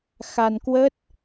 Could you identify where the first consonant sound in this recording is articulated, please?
velar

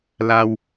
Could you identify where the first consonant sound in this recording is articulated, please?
alveolar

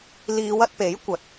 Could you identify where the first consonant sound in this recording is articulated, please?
alveolar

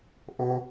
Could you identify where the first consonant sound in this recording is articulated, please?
glottal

